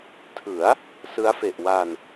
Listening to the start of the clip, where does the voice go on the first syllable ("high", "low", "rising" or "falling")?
rising